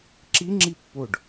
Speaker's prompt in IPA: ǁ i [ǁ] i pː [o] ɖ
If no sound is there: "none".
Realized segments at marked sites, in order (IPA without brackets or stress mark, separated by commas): ŋ͡ǁ, o